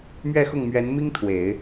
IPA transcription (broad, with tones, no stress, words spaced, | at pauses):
mɥɛ˥˧xʊ˥˩ŋmɥɛ˧˥nmi˥ŋ t̪ʰwe˨˩˦ɪ̯